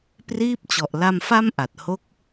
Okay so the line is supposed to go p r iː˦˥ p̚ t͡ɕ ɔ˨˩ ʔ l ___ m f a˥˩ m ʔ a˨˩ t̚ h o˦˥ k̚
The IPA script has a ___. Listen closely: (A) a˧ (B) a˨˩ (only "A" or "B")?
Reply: A